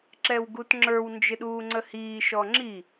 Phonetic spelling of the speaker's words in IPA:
ǁɛwɡutŋ͡ǁə˞w nd͡ʒɪɗuːŋ͡ǀəhiː ʃɔŋ͡ǁi

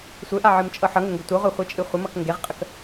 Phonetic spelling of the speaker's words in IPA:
sʷɘʔa ʕɨmt͡ʃʼɤħʌŋɘ ŋɡɘtʷɤʁʷe χʷit͡ʃʼɨχʷəmʌk ŋɡeʁqʼək

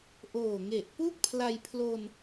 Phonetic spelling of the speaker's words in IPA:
ʔoː˨˩ŋe˨˩ʔpu˥˩k̚ pʰla˧jpʰlo˧n

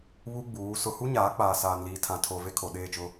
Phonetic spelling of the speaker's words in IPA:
βu˦ɡ͡buː˨˦ sʊ˨hu˦ ɲaː˨˦k͡paː˨saː˨nliː˨ tʰã˨tʰo˨ ve˦kʰo˨ɗeː˦˨t͡ʃʊ˦

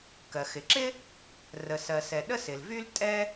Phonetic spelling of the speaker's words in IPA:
kɜ˩xɪ˩ǁɪ˥ | rə˩sɜ˩sɛ˩ ɗə˥sɪ˩lvy˥l tʼɛ˥

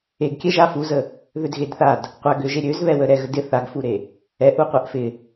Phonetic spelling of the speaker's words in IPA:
eɡkʲɛ ʒafuzə | ðødɣedθad | qʷaɡøʒe ɾʲøzβɛwə ɾɛɣədɪ θaɡfuɾe | ɛʔu qʷaʔfɪ

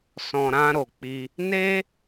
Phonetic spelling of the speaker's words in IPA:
sɔ̃˨ ɾã˧ɾo˨k͡pi˧ | ne˦

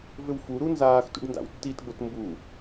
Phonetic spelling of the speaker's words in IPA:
vʏwfuɾu nzaːxtṵɖ nda̰wtːitɡ͡bot mbu

